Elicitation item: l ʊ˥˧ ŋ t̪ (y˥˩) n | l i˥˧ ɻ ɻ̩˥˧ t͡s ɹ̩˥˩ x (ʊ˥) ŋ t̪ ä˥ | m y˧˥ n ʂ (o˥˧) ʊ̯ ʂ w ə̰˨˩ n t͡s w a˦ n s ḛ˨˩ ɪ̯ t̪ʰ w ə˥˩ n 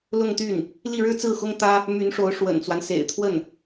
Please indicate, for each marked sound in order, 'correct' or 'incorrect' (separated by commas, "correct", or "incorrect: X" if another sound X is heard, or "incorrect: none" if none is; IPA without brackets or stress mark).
correct, correct, incorrect: o˧˥